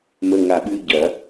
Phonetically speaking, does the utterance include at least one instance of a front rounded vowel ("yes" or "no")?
no